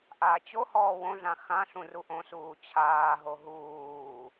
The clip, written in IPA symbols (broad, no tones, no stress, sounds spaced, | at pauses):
ʔ aː t͡ɕ o h ɔː w õ ɮ ã x ã ɬ ũ r u ʔ õ s uː t͡ɕʰ aː ɦ o ɦ uː